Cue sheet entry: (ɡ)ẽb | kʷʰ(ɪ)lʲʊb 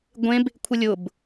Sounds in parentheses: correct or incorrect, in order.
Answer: incorrect: ɡʷ, correct

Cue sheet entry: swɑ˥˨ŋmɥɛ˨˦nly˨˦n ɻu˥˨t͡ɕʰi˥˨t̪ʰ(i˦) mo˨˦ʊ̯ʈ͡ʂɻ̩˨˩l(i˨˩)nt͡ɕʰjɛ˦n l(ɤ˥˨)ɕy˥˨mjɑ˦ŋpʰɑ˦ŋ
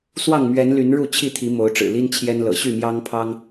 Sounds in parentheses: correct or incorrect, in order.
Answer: incorrect: i˨˦, incorrect: i˦, incorrect: ɤ̰˨˩

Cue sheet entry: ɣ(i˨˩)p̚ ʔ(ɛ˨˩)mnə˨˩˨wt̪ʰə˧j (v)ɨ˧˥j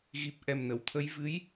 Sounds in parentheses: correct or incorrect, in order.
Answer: correct, correct, correct

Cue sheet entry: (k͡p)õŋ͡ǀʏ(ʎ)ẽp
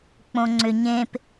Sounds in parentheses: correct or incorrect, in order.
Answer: correct, incorrect: ɲ

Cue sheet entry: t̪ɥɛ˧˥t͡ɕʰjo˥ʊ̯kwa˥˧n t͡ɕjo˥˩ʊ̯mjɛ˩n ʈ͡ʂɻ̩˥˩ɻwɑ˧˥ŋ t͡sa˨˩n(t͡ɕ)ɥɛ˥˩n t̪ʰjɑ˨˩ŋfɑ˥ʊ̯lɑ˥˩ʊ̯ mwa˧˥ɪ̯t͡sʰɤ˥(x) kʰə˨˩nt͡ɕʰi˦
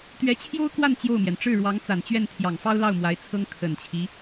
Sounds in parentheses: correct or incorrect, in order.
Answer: correct, incorrect: ŋ

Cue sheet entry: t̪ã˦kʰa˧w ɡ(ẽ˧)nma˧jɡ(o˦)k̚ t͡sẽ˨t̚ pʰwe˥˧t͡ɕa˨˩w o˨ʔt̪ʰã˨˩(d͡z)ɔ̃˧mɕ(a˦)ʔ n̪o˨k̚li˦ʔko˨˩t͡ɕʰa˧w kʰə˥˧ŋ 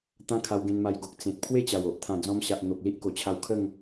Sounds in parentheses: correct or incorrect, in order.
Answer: correct, incorrect: o˨, correct, incorrect: a˨

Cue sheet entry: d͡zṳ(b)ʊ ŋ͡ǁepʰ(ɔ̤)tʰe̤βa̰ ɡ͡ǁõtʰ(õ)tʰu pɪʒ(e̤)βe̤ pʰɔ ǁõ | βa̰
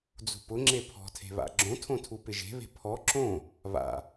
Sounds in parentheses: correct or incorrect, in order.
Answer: incorrect: p, correct, correct, correct

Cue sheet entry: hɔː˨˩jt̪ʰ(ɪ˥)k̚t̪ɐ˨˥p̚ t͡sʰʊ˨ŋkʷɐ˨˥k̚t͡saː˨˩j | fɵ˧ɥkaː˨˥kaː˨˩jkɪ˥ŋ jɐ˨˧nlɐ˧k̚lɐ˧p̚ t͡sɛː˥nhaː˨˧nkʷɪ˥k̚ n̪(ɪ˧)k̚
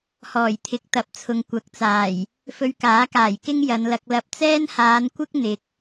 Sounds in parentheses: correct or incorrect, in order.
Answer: incorrect: ɪ˨˥, incorrect: ɪ˨˥

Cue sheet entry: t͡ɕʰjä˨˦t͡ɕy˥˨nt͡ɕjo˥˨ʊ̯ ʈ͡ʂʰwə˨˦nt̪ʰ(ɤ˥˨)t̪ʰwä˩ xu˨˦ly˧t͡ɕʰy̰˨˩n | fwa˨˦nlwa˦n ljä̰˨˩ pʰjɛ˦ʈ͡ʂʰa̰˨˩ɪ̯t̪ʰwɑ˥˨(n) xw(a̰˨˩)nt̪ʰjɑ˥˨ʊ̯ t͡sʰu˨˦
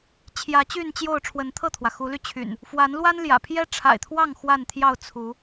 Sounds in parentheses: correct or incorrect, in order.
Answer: correct, incorrect: ŋ, incorrect: a˥˨

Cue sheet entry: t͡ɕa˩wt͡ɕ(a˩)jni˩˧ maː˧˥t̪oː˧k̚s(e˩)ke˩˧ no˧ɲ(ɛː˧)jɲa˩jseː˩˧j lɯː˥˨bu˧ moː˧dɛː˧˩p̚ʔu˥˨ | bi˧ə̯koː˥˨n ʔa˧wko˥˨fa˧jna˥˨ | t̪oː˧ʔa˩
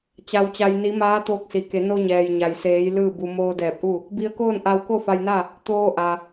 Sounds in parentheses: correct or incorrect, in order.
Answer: correct, incorrect: i˩, incorrect: ɛː˩

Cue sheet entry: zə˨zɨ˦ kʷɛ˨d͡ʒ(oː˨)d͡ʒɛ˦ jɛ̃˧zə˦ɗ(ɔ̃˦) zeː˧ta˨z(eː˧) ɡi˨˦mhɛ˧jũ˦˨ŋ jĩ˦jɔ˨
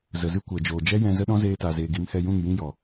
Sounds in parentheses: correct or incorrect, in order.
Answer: correct, correct, incorrect: eː˨

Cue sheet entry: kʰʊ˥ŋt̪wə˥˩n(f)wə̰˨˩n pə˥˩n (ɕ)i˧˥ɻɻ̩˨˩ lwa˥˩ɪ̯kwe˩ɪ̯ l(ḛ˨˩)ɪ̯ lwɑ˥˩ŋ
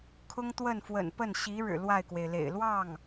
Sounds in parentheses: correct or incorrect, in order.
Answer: correct, correct, correct

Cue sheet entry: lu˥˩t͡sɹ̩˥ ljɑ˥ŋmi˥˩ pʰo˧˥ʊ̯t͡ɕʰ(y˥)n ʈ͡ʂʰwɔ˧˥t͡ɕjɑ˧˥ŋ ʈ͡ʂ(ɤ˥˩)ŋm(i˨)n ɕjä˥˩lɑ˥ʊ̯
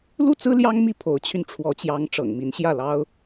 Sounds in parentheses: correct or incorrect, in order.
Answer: incorrect: y˧, incorrect: ɤ̰˨˩, incorrect: i˧˥

